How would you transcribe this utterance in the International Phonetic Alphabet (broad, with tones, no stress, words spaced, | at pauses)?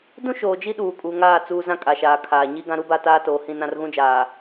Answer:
dũ˦ʃoː˨d͡ʒi˦ ɗuː˨kʼu˨ŋaː˦˨ t͡suː˦ zã˦kʼa˨ʃaː˨ kʰaː˨ɲi˦ ɡã˦ɾu˦ba˦˨ taː˦toː˨hĩ˦˨nã˦r ɣũ˦d͡ʒaː˨